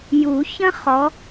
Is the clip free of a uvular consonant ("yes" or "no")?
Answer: no